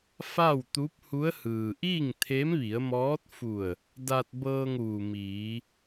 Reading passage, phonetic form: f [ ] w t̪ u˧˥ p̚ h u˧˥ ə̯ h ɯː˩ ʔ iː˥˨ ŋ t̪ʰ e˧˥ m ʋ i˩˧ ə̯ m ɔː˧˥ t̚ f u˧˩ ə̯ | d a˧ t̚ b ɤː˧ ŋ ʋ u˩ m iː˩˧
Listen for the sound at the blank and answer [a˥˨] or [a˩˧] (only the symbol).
a˥˨